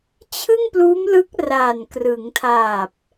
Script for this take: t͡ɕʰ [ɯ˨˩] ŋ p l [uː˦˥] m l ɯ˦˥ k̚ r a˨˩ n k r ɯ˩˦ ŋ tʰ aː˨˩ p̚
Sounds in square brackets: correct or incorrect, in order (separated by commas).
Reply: incorrect, correct